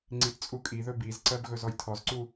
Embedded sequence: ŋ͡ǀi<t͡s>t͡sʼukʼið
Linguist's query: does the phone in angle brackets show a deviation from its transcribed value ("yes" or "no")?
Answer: yes